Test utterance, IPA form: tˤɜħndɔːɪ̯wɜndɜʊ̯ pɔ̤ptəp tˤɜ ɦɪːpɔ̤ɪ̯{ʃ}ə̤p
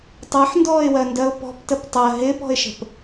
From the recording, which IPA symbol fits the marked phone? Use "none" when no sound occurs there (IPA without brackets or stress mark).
ʃ